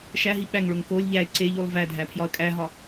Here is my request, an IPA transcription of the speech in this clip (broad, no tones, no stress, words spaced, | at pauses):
ʃæɦi ɓæŋɭoŋ kolʲ ʎæɪ̯ ǀeʎulˠ vædʱæpʰjɒə̯ kʼæɦɒ